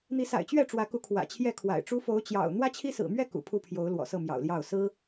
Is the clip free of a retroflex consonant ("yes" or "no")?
no